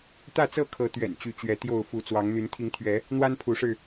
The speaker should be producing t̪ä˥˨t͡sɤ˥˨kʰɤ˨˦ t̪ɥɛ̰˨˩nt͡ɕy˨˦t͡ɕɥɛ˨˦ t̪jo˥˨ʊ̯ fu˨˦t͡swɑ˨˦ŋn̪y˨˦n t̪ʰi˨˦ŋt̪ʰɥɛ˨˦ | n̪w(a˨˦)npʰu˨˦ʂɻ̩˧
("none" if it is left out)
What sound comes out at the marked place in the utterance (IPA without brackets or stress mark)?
a˦